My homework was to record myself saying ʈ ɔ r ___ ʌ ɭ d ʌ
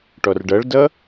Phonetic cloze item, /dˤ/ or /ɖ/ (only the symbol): ɖ